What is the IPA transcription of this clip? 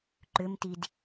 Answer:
ǃʏmtid

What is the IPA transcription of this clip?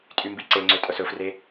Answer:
tʼymbiǀeŋ͡ǀø tʼœsɵfre

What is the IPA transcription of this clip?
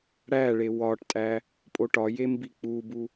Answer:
ɽæɭe wɒʈtʼæ | pʼoʈɒje mbik͡pubu

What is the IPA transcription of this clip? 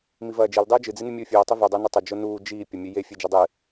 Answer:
mivɐːd͡ʒil dˤʉːd͡ʒɨ d͡zinɨmʲuːfʲuː tˤivɵ dˤonɨtˤɐ d͡ʒonuː d͡ʒiː pʲɐmʲʉje fʲed͡ʒɐdˤɨ

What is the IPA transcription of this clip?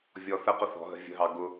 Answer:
vʲɔθəqʊ θɔ̤ɦə̤ vʲə̤ɦɑ ɡʊ

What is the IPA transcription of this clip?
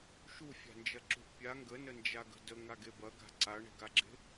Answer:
ʃufʲa̤nd͡ʒɐǁṳʔ pʲa ŋɡənənd͡ʒaɡə̤ dəŋaɡe bɐɡa̤ ǀaɳe̤ɡaɡ͡ǁe̤

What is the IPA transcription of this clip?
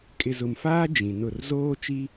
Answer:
kʼɪ˨ zʊ˨mfaː˦ d͡ʒĩ˨nʊ˦˨r zoː˦t͡ʃi˦

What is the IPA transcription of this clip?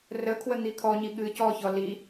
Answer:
rəkʰwə n̪ikʰɔɲi ɠɨ cɔçɔ li

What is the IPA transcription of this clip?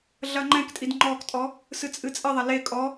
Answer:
ɮɐŋ͡ǃɛ̃ktʼid ŋ͡ǃɔktʼɔ | sɨt͡sʼɨt͡sʼɘðˤɐ le kʼɔ

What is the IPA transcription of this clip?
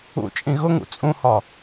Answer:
ṵt͡ʃʼĩ ɣʊŋṵ t͡sʼũhɒ

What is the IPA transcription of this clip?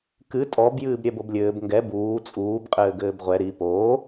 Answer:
kɨ tʼɔb jɨːbɾʲɛboblʲɘːb ŋɡɛ buː t͡sʼuːb qʼɘːɡɘːbʁʷɛ ɾi poː

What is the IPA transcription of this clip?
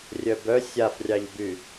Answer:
rʲœbœ sʲafrʲɑʎby

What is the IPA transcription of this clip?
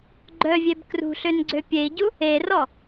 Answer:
ɡ͡ǃœvʲeb krṳɬønɡ͡ǀø pʲei̯ɟu | erɔ

